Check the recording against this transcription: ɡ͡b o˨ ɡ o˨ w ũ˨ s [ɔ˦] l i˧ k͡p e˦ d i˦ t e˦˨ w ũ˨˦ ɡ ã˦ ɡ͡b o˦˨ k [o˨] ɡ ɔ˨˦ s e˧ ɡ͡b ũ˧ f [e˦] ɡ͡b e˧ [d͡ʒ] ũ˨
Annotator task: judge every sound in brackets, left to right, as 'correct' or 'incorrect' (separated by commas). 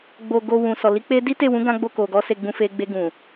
incorrect, correct, incorrect, incorrect